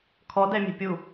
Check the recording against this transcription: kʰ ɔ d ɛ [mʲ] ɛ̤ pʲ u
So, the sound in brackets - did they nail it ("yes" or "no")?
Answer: yes